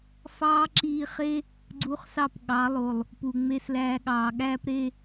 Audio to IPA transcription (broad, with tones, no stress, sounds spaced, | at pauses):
f ɑː˦ ǁ iː˧ χ e˦ | ɡ͡ǀ u˧ χ s ɑ˦˨ p ɠ ɑ˨˦ lˠ o˨ lˠ | p u˨ ŋ͡m e˧ s l æː˧ ɠ ɑː˨ ɠ æː˦ p ɾ e˧